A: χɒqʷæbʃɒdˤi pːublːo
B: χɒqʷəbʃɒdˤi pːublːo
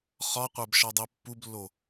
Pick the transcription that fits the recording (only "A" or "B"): A